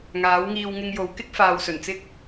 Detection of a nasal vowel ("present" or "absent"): absent